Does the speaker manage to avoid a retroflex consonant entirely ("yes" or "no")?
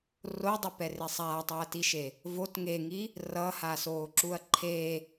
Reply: yes